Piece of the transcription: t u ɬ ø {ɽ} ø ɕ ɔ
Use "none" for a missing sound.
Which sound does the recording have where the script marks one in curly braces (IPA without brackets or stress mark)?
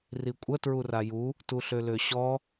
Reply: l